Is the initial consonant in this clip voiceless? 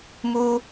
no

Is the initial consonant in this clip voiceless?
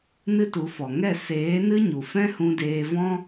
no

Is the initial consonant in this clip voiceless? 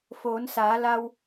yes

